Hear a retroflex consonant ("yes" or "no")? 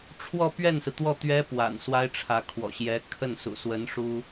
yes